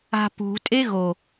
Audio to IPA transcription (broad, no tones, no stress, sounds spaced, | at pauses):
a̤ p ṳ tʼ e ɣ o